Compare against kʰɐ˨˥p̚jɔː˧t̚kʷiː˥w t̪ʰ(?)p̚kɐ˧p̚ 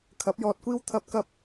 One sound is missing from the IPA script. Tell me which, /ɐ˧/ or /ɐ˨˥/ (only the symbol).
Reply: ɐ˧